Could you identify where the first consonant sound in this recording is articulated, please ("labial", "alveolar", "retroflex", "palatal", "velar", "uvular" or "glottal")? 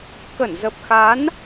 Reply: velar